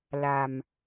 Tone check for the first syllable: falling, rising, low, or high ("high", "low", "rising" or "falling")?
low